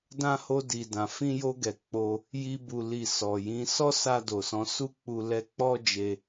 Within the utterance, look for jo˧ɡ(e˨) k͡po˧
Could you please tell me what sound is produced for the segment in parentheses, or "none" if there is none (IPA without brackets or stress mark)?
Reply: ɛ˨